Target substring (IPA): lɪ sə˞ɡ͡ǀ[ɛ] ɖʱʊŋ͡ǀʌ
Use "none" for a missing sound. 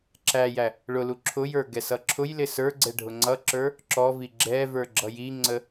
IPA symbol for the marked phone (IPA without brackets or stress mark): ɛ